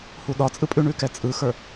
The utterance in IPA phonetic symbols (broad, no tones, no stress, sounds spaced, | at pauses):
h u ɗ ɒ t͡sʼ ɯ pʼ ʉ ɳ ʉ k ɛ t͡sʼ ɯ x ə˞